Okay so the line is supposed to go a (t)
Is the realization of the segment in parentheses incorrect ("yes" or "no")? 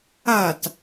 no